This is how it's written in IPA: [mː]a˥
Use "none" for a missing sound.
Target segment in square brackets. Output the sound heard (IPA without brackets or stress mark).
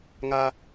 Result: ŋ